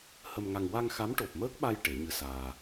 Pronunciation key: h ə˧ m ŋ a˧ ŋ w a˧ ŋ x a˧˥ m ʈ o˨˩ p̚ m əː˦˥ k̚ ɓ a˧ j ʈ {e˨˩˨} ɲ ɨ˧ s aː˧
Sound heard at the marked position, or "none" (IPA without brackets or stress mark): e˨˩˦